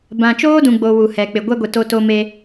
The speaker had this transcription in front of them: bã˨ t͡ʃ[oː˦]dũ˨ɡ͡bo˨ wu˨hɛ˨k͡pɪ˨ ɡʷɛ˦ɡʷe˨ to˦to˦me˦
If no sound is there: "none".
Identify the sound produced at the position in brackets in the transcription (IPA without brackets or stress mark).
oː˦